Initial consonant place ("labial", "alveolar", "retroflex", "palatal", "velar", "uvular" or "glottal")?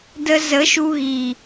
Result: alveolar